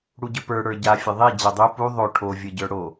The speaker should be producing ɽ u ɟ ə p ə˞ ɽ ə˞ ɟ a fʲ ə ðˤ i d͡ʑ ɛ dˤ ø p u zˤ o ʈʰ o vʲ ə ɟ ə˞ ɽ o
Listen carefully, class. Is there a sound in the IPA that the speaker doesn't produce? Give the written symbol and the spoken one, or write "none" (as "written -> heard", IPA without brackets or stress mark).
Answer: zˤ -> ðˤ